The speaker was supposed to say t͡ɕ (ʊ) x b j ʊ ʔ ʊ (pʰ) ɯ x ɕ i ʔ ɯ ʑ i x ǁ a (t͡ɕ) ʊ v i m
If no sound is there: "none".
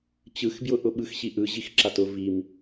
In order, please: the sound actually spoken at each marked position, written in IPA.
ɯ, ɓ, t

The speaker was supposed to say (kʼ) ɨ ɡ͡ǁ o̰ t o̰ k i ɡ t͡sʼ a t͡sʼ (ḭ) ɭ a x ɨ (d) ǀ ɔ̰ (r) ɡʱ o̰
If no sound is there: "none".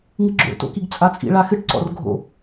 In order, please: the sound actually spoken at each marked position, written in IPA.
ŋ, ḭ, ʈ, r

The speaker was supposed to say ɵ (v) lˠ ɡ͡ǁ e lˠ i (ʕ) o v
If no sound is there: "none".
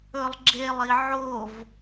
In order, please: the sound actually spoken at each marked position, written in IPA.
none, ʕ

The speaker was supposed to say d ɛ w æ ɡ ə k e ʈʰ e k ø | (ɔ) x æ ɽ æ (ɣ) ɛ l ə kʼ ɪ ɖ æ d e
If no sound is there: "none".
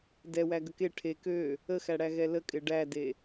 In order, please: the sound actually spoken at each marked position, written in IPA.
ə, ɣ

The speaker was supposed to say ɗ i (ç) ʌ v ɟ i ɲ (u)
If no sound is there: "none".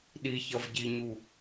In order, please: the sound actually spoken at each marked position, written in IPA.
ç, u

